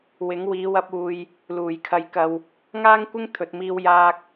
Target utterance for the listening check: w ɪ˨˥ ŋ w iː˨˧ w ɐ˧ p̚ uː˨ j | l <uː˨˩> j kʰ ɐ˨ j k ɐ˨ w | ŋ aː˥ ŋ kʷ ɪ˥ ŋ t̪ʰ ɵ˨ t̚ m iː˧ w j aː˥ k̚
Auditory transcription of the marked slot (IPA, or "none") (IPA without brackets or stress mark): uː˨˩